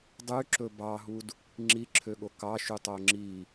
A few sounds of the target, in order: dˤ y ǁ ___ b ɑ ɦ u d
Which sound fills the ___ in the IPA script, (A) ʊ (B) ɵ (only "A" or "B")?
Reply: B